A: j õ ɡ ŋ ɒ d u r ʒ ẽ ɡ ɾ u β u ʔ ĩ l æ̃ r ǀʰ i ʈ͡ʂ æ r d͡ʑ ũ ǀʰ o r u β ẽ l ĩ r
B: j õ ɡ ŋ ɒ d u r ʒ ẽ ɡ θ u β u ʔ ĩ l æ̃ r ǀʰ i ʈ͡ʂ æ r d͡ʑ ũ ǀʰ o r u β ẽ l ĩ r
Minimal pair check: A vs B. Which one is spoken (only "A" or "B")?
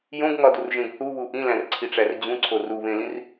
B